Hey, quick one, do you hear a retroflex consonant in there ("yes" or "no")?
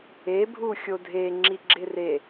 no